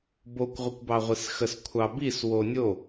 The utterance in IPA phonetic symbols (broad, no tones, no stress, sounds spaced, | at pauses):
b o kʷ ʁʷ ə kʷ b ɑ ʁʷ i s x ə s kʷʰ ɑ b i s w o nʲ o